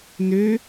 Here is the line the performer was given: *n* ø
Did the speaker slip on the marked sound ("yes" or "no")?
no